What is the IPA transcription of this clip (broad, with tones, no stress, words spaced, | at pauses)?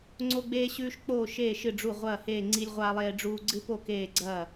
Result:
ŋ͡ǀo˦ɡ͡beː˦ɕʉː˦ʃ k͡poː˥˩ʃeː˥˩ ʃɨ˥˩ɖ͡ʐu˥˩ ʁʷɐː˥˩heː˥˩ŋ͡ǀi˦lʲ ʁʷaː˦lˠeː˦ɖ͡ʐuː˦ ɡ͡ǀɨ˦po˥˩ keː˥˩ɡ͡ǀɐː˥˩